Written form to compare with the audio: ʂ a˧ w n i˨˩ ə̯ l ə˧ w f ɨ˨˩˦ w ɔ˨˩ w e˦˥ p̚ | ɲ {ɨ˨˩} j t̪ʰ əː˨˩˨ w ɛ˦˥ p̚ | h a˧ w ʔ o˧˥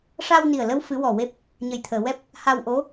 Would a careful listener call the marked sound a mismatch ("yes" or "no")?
yes